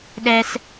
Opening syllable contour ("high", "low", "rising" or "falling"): high